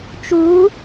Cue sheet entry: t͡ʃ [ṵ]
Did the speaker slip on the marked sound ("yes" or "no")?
yes